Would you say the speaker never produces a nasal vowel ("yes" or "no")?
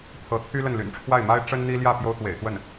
yes